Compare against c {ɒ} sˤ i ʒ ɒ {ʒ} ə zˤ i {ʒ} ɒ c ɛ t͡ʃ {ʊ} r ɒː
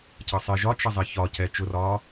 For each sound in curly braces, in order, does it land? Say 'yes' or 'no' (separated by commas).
no, no, no, yes